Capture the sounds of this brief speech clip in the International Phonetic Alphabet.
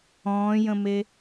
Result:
ɔ̃ː j ə̃ m e

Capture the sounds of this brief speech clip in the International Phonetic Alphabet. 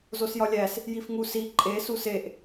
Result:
z o s j ɒ lʲ æ s | j i f ŋ u s i ǃʼ e s u s e ʔ

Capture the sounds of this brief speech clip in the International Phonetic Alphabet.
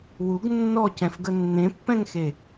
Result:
w u ɡ nː ɔ c ɛ̃ f ɡ ə nː ẽ pː ɛ̃ ŋ x e

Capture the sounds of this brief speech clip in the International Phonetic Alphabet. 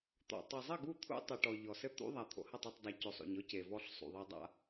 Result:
t̪ ɔ̰˨ tˤ ɨ˨ zˤ ɘ˦˨ ɡ u˦˨ t̪ʰ ṵ˦ tˤ ɘ˨ ʈ ɔ˨ ʎ ɔ˨ s ɘ˦ t̪ ṵ˦ ðˤ a˨ t̪ʰ o̰˨ h ɐ˦˨ tˤ ɐ˦˨ tˤ dˤ a˨ c o˨ sˤ o̰˨ ɲ ɔ˦ c e˨ v ɔ˦ ɬ sˤ ṵ˨ ðˤ e˦ dˤ a̰˦

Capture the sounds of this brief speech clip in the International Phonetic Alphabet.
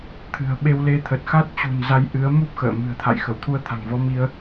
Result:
t̪ʰ ɨ̤˨˩ ə̯ ɓ e˧ w l e˧ t̪ʰ ə˨˩ t̚ x a˦˥ t̚ t͡ɕ ṳ˨˩ n z a˧ j ʔ ɨ˨˦ ə̯ m u˦˥ p̚ x ə̰ː˧˨ m ɨ̤˨˩ ə̯ t̪ʰ a̰˧˨ j x ə˧˩ w t̪ʰ u˧ ə̯ t̪ʰ a̤˨˩ ŋ v ɔ˨˦ m i˧ ə̯

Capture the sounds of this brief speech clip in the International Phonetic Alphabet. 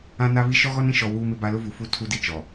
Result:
ã˦ n a˦ β i˦ ʃ ɔ˦ ɣ ɔ˦ n ĩ˨ ʃ ɔ˨ w uː˦ m ɪ˦ b a˦ l ʊ˦ v u˨ f u˦ tʰ u˦ d i˦ t͡ʃ ɔ˨

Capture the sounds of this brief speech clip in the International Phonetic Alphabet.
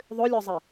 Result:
ðˤ ʏ lʲ œ zˤ i

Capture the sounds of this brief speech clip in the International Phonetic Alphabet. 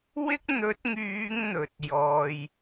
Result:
w ɪ˥ k̚ n̪ ɵ˨˥ t̚ ŋ yː˨˧ ŋ n̪ ɵ˨ t̚ j ɔː˧ j

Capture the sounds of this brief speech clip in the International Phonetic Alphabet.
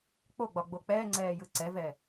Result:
k͡p o ɡ͡b ɒ ɡ͡b o k͡p ɛː ŋ͡ǀ ɛː j ɯ ǀ ɛ v ɛ

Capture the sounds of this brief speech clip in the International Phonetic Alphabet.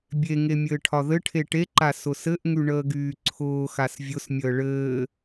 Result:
bʲ e ŋ e mʲ ɘː ʈʰ ɒ ð ɘ ʈʰ e ʈ e ǃ a s ʊ s ɘ ʔ ŋ y ɳ əː ɡ yː ǀʰ ʊː x a s vʲ ʊ s mʲ əː ɭ ɘː

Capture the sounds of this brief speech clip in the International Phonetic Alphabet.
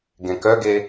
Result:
ɡ ẽ k œ ɡ e

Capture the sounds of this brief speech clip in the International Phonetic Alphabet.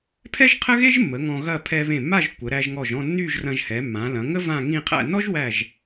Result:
pʰ ɛ˥ ʒ qʰ ə˥ ɣ e˥ ʒ mː ə˩˧ ŋ ɔ̃˧ ɣ ɐ˥˧ pʰ ɛ˧ β ẽ˧˩ mː a˥˧ ʒ kʷ ə˩˧ ɾ æ˧ ʒ ŋ ɔ˧˩ ʒ ɔ̃˥˧ nː y˥˧ ʒ r ɐ̃˧ ʒ h ɛ˩˧ mː ã˩˧ l ɐ̃˩˧ ŋ ə˥ v ã˥˧ ŋ ĩ˥˧ qʰ æ̰˥˧ n ɔ˥ ʒ w æ˧˩ ʒ

